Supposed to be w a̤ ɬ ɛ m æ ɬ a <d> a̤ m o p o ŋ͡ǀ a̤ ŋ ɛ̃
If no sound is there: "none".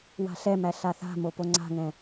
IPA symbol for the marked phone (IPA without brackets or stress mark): θ